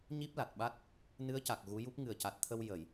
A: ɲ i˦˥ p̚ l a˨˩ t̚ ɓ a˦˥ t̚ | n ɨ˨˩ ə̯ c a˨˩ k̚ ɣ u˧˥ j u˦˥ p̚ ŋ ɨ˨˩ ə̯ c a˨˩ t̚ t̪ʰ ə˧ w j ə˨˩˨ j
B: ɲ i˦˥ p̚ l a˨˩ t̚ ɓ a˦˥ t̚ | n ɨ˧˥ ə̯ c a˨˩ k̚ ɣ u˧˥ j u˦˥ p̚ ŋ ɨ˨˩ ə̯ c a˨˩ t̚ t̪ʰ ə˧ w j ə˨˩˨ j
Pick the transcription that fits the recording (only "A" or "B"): B